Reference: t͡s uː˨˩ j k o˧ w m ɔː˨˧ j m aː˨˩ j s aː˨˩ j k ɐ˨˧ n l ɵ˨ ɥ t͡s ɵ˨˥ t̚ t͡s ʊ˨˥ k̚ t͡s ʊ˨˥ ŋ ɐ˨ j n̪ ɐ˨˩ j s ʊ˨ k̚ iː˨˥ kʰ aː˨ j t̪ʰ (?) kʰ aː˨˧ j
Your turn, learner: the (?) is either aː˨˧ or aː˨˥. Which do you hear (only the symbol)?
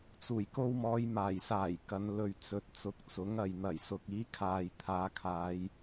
aː˨˧